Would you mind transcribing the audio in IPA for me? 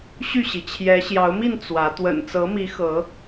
ɕ y˥˨ ɕ i˩ t͡ɕʰ j ɛ˨˦ ɕ j ɑ˨˦ ʊ̯ m i˥˨ n t͡s w ä˨˦ t̪ w ə̰˨˩ n t͡s ɤ˨˦ m i˨˦ x ɤ˨˦

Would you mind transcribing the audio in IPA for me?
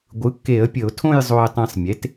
ɡʷ ɯ˩˥ kː e˧˩˧ ə̯ pʲ ə˧˩˧ ʊ̯ tʰ õ˥˧ j zˤ o˧ ɪ̯ tˤ ẽ˧ sˤ mʲ e˩˥ t

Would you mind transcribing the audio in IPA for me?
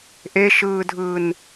ʔ e ʃ ɯː dʱ ɯː n

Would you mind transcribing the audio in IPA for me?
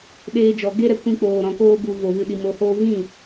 ɗ eː˧ d͡ʒ ɔ˨ ɡ e˦ ɾ ɛ˧ kʷ ĩ˧ k͡p oː˨ ɾ ɔ̃˨ k oː˧ b u˨ v o˨ v ɨ˨ ɗ i˨ m o˨ h oː˧ v ĩ˦˨

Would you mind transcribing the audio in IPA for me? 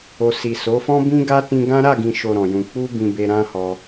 o˧ s i˨ s o˨˦ f ɔ̃˦ b ĩ˦ ɡ a˦ t ĩ˧ ɡ ã˦ ɾ a˦˨ ɡ ĩ˨ ʃ o˨ ɾ ɔ̃˨ j ũ˨ k͡p u˧ b ĩ˦ b e˦ ɾ ã˦ h ɔ˧

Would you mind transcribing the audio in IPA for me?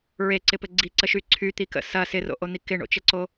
ɹ e ǀ ɪ p ɘ ɡ͡ǀ i ǀ ə ʃ y ǀʰ y t̪ i k ə̰ s ɐ s ɪ r o̰ ʔ o n̪ i k ɪ ɳ o̰ t͡ʃ ə ǀ o

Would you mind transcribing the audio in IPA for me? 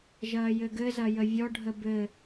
ʒ ɐː j ɘ ɡ ɘ z ɐ j ə vʲ ɔ ɖʱ ə b ɘ

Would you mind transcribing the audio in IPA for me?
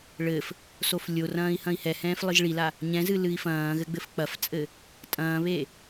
ɭ ɘ f | s o f lʲ o r ɐ̃ː i̯ h ɐ̃ i̯ h ɛ h ɛ̃ː f lˠ ɨ ʒ ɭ i l a | ɲ ɛ̃ z ɨ l ɨ i̯ f ɐ̃ː ɣ ɘ ɡ͡b ɘ f k͡p ɐ f t͡sʼ ɘ | tʼ ɐ̃ː β e

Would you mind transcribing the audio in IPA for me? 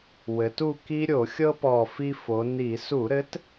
w ɘ˩˧ t u˦˨ k i˦ ɾʲ o˧˩˧ xʲ ɤ˦ p ɔ˨˩ f i˦ f o˩˧ n i˧˩˧ s u˧˩˧ ɾ ɘ˨˥ t

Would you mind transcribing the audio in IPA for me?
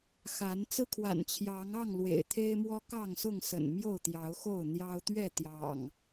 x a˨˦ n t͡s ɹ̩˦ kʰ w a̰˨˩ n t͡ɕʰ j ɑ˨˦ ŋ ɑ˥˨ ŋ l w ḛ˨˩ ɪ̯ t̪ʰ e˦ ɪ̯ m w ɔ˦ k ɑ˥˨ ŋ s ʊ˥˨ ŋ s ə̰˨˩ n m j o˥˨ ʊ̯ t̪ j ɑ˨˦ ʊ̯ x o˥˨ ʊ̯ n̪ j ɑ˦ ʊ̯ t̪ ɥ ɛ˥˨ t̪ j ɑ̰˨˩ ŋ

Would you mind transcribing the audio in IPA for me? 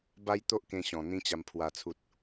b a˦ j t̪ o˦ ʔ k ẽ˧ ɕ ɔ̃˨˩ n̪ ĩ˧ t͡ɕ a˨˩ m pʰ w a˨˩ t͡sʰ u˨ t̚

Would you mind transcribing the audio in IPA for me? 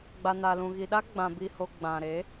ɡ͡b a˨ n a˨ l ũ˨ ɣ i˨ ɗ a˦ ɡ͡b ã˨ b i˨ h o˨ ɡ͡b ã˨ ɾ e˨˦

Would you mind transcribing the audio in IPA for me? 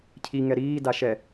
cʰ i ŋ ɛ ɾ iː d a ʃ ɛ

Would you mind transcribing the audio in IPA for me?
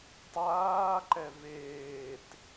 tˤ aː ǃ ɛ v eː t

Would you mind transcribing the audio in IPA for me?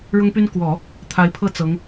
ɻ ʊ˥ ŋ p y˥ n k w ɔ˨˩˦ | t̪ʰ a˧˥ ɪ̯ pʰ ɤ˥˩ t͡s ɤ˧˥ ŋ

